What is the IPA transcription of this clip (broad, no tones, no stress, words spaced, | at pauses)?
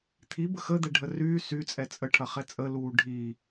t̪ʰi bəxəd̪ɛ ɖʱəryː syt͡sʼɛ t͡sʼə ʈʰɐχɛt͡sʼəluː ɖʱi